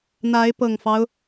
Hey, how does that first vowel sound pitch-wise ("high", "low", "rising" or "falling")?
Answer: rising